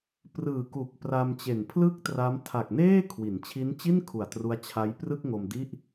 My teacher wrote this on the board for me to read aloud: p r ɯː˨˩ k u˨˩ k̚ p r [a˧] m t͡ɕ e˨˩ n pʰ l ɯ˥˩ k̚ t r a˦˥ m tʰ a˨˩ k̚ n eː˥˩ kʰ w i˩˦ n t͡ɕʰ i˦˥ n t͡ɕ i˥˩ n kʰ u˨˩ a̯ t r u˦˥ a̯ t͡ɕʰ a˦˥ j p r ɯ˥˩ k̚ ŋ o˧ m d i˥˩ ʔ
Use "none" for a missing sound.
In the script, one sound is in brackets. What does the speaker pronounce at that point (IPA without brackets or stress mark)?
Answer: a˧